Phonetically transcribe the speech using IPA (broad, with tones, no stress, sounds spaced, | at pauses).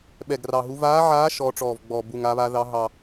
ɓ ɛ˨˩ ɡ r ɑ˨˩ ɦ u˨˦ v aː˨˦ ʕ aː˨˦ ʃ ɔː˨˦ ʈ͡ʂ ɔː˨˩ v ɡ͡b ɔː˨˩ b u˨˩ ŋ a˨˦ β aː˨˦ ð ɑ˨˦ ɦ ɑ˨˩